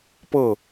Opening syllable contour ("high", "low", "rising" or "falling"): falling